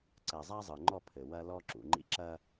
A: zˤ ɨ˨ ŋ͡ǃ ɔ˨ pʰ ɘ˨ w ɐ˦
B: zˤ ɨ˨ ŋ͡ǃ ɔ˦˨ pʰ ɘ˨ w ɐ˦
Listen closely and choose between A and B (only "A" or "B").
B